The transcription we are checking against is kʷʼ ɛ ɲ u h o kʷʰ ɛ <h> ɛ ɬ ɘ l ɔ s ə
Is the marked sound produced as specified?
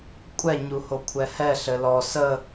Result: yes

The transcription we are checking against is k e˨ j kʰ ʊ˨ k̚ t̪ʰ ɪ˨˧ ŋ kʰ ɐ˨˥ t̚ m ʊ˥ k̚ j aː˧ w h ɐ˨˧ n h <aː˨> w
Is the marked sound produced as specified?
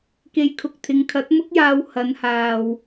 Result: yes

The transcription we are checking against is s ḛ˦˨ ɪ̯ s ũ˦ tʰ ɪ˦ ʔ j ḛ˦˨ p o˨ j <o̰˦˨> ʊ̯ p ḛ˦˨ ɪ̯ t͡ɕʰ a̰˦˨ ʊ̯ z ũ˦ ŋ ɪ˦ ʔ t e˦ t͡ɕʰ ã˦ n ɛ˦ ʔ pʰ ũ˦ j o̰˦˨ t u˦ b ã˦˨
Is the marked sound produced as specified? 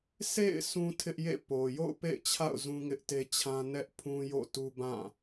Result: yes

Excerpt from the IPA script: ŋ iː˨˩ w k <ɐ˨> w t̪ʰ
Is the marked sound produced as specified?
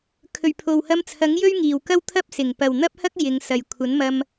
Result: no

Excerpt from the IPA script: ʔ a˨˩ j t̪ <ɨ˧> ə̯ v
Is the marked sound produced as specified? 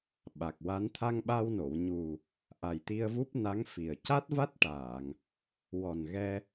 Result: no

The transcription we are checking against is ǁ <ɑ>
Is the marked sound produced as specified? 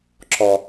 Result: no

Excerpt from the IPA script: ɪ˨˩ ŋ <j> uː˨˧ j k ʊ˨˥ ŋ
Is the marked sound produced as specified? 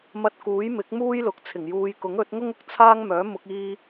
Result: yes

